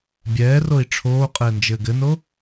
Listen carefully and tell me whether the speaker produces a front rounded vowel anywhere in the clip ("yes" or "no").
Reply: no